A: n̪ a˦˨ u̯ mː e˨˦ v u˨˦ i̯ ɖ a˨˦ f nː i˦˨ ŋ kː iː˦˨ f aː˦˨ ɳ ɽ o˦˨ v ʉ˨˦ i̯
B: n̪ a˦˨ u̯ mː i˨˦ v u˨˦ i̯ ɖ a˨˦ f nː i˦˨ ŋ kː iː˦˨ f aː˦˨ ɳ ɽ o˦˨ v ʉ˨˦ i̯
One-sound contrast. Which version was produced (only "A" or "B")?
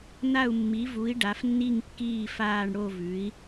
B